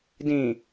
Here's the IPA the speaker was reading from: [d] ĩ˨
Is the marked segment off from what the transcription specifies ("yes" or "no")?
no